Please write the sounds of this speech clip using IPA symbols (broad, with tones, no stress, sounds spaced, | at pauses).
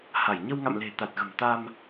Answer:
h a˧˩ j ɲ ə˧ w ŋ a̰˧˨ m l e̤˨˩ t̪ a˨˩ t̚ ɣ ə̤˨˩ m t̪ a˧ m